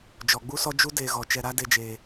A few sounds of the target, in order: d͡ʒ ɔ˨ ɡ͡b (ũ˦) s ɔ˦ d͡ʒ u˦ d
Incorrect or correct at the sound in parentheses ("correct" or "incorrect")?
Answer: incorrect